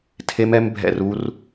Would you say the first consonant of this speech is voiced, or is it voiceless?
voiceless